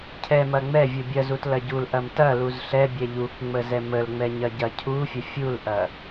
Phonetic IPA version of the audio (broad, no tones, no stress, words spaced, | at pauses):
cʰɛmɐ ŋ͡mɛ vʲubʲɐzut lɐɟulʔɐm tɐluz ɬɛbʲɛ ʎukŋ͡mə zɛməlŋ͡mɛ ɲɐɟɐcʰufʲə fʲulʔɐ